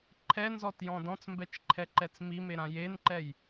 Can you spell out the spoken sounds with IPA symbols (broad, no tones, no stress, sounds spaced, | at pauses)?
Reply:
ǃʰ ɛ n z ɔ t j ɔ̃ d ɔ̃ t͡s m b ɛ t͡ʃ ǃʰ ɛ ǃ ɛ t͡s m i m e ɾ ã j e n ǃ ɛ j